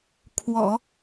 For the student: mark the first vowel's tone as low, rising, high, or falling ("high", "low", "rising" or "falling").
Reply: low